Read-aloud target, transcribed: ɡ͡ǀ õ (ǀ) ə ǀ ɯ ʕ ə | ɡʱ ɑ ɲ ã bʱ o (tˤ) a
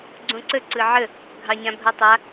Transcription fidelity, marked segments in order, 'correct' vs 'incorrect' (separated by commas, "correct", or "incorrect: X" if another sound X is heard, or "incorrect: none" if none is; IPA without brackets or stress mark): correct, correct